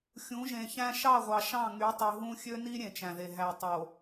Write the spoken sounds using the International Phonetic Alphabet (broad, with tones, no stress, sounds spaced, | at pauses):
xʲ ũ˨˦ ʒ ẽ˨ ç æ̃˦ ʃ ɑ˦˨ ʁʷ ɑ˨ ʃ ɑ̃˦˨ ŋ y˨˦ tˤ y˨ ɦ ũ˦ xʲ ø˦ n i˦ ɾʲ ẽ˨ t͡ʃ æ̃˨ ð e˨ ɦ æ˨ tˤ o˨